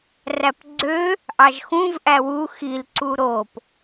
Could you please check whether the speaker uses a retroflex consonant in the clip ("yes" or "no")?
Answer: no